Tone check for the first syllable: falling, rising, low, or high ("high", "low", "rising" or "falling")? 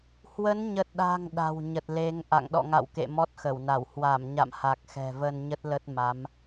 rising